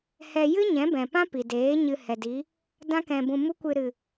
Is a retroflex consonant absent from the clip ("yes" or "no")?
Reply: yes